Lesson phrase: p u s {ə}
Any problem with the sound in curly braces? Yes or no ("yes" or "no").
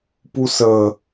no